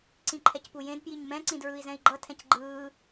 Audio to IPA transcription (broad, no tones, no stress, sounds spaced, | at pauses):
ǀ ĩ ǃʰ ɛ c p u j ẽ d p j i ɲ m ɛ̃ ǀ ĩ d ɹ ɯ i̯ z ɛ̃ i̯ ɡ͡ǃ ʌ tʰ ɛ̃ c ɡ͡ǃ ɯː